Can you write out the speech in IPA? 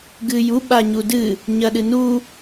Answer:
ɡ ɨ j u ɓ a ɲ u d ɨ | ɲ ɐ ɗ ɨ n u

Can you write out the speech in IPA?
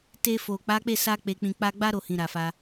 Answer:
t e˧ f o˨ k͡p a˨˦ k͡p e˦˨ s a˧ k͡p e˨ k͡p ĩ˨ k͡p a˧ ɡ͡b a˦ ɾ o˦˨ h ĩ˨ ɾ a˨ f a˧

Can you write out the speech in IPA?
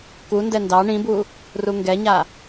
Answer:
k u n d ɛ n d ɑ ɳ ĩ b u | r u ŋ ɡ ɛ ɲ a

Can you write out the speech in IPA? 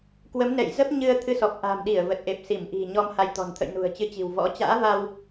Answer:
k w ə˨˦ m n ɛ̰˧˨ j z ə˦˥ p̚ ɲ ɨ˧ ə̯ t̪ʰ ɨ˧ s ɔ˨˩ p̚ ʔ a̤˨˩ m ɗ i˧˩ ə̯ v ə˨˩ t̚ ʔ e˨˩ p̚ s i˧˩ m ʔ i̤˨˩ ɲ ɔ˧ m h a˧ j t̪ ɔ̤˨˩ n t̪ʰ ə̰˧˨ j n ṳ˨˩ ə̯ t͡ɕ ɨ˨˦ t͡ɕ i̤˨˩ w v ɔ̰˧˥ t͡ɕ a̰ː˧˥ v a˧ w

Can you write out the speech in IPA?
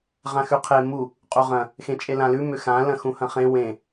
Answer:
ʁ ã x ʉ qʰ e m u | qʼ u ʁ ɐ̃ | x ẽ t͡ʃʼ e l ã l ʉ m ʏ x ã l ɐ̃ x ũ h ɐ̃ χ ẽ w ẽ

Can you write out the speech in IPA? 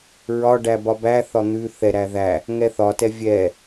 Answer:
ɹ ɒ ɖ æ b ɒ b æ θ ɒ n̪ ʉ θ ɛ ɾ æ ð æ | ŋ ɛ θ ɒ t ɛ vʲ ɛ

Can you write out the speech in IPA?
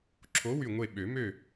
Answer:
ǁʰ o˨˥ w y˧˩ ŋʷ e˧˩ ɓ ø˨˩˦ m ø˥˨

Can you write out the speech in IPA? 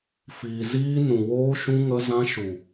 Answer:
f iː˨ z iː˧ n ũ˨ w oː˧ ʃ ũ˧ ŋ ə˧ z ã˧ ʃ u˨

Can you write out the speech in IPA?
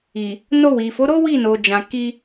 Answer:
i˨ | n o˧ w i˨ f o˨˦ ɾ o˦ w i˦˨ n o˨ d͡ʒ ã˨ k i˧

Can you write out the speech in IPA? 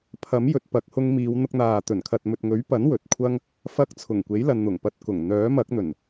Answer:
pʰ ɐ˨˥ m j ɵ˨ t̚ p ɐ˨˥ k̚ h ʊ˧ ŋ m iː˨˧ w n̪ ʊ˧ k̚ n̪ aː˨ t̪ ɵ˨˩ n kʰ ɐ˨ t̚ m ɵ˨ t̚ ŋ ɵ˨˥ ɥ p ɐ˨˥ n w ɵ˨˥ t̚ kʷʰ ɐ˥ ŋ | f ɐ˧ k̚ t͡sʰ ʊ˨˩ ŋ kʷ e˨˥ j l ɐ˨ n n̪ ʊ˨˩ ŋ p ɐ˧ t̚ k ʊ˨˩ ŋ n̪ œː˨˥ m ɐ˨˥ k̚ n̪ ɵ˨˩ n

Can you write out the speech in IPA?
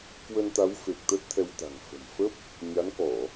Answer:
k w ə˧ n t̪ a˨˦ w f e˨˩ k̚ t̪ ə˦˥ t̚ t̪ʰ ɛ˧ w t̪ a̤˨˩ ŋ f ə̤˨˩ m f ə˦˥ p̚ | ɲ a˨˦ n k ɔ˧˩˨

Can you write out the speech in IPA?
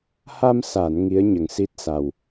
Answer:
h a˧ m s a˨˩˨ n ŋ i˧˥ ə̯ ɲ ə˨˩ ŋ s i˦˥ t̚ s a˨˩ w

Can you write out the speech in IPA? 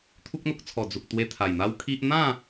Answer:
t̪ʰ u˦ k̚ n̪ o˦ k̚ t͡sʰ ɔ˨˩ d͡z u˨ k̚ t̪ w e˧ t̪ʰ a˨˩ j n̪ a˦ w kʰ i˦ ʔ n̪ ã˥˧

